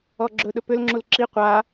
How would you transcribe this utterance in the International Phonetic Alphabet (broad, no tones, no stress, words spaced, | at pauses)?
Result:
ɔɡ͡ǁɵɗɵ pʏlŋ͡ǁul ǁi qʷa